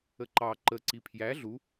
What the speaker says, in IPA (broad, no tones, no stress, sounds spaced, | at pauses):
ə ǃ ɑ ǃ ə ǀ i pʰ j æ ɮ u